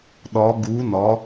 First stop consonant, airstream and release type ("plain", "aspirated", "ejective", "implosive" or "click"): implosive